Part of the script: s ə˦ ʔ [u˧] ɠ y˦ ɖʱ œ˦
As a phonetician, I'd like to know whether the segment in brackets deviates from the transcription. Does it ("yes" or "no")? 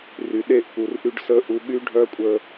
no